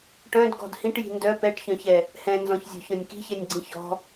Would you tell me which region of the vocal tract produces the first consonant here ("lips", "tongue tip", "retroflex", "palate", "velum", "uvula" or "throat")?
retroflex